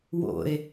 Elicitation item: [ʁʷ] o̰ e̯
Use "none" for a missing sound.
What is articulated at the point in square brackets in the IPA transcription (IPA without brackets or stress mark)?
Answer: w